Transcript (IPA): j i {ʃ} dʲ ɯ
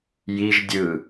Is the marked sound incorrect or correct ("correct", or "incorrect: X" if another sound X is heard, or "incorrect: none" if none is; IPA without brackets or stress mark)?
incorrect: ʒ